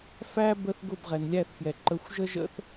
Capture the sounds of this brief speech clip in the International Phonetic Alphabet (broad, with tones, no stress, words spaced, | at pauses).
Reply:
fæ˦ bə˧θ ɡʊ˦˨bʁɛ˨nlʲæ˦˨θfjɛ˨ ǃə˨˦xʷʒə˦ʒə̰˦θ